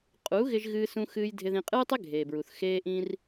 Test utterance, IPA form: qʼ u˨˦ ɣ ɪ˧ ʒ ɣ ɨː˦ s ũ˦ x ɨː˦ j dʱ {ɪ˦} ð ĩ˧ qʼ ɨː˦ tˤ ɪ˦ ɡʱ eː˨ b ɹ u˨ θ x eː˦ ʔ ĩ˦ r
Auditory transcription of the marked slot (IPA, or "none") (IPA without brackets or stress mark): ɪ˧